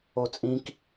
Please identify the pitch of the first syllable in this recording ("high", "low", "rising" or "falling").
high